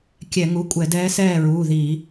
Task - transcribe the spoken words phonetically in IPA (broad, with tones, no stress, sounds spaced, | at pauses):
kʲ ɛ˧˩˧ ŋ u˩˧˩ kʷʼ ɛ˧˩˧ d ɛː˧˥ s ɛː˥˨ ɹ uː˩˧˩ ð iː˧˩˧